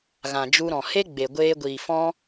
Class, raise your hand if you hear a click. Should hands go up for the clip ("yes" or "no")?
no